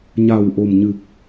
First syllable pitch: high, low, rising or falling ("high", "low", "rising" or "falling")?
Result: low